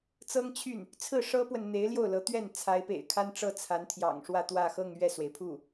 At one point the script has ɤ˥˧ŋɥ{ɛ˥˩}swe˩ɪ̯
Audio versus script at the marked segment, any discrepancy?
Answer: no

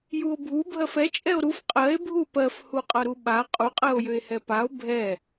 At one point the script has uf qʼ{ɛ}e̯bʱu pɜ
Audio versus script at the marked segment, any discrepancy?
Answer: yes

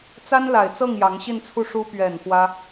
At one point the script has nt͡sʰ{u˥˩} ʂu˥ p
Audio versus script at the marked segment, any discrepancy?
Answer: no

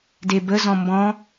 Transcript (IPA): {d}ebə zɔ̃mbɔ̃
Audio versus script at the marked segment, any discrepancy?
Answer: no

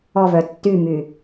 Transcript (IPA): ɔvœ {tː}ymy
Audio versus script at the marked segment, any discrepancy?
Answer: no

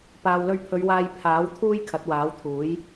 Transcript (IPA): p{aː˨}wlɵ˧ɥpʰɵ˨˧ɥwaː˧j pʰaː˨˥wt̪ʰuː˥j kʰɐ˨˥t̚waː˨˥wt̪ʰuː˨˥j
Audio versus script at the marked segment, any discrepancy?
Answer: no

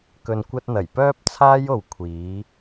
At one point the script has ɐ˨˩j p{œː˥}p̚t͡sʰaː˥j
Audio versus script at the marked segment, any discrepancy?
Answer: no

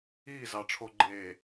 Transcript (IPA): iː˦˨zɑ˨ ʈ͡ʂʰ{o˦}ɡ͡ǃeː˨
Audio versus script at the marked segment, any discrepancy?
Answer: yes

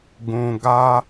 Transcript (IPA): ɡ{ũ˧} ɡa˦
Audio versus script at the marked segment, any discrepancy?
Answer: no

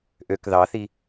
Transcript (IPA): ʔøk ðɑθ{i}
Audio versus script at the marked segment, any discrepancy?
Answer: no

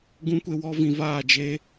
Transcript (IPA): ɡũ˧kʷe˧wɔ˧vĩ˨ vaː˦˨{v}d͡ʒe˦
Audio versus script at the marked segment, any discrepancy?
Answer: yes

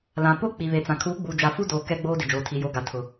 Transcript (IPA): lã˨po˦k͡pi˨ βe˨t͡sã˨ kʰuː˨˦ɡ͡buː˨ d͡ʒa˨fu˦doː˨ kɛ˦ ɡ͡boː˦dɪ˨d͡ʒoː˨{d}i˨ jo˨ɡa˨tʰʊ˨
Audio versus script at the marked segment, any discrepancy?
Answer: yes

